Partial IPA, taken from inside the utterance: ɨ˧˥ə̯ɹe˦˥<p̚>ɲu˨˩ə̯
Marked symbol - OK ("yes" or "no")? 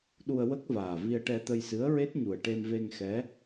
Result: no